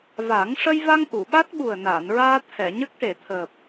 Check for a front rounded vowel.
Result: absent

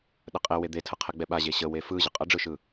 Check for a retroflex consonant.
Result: present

